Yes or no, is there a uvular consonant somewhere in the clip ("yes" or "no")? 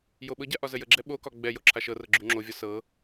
no